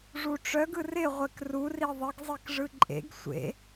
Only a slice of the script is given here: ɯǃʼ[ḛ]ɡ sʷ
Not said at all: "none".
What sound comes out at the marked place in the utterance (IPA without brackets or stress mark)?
ḛ